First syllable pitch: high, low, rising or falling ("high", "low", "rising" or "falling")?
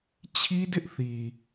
high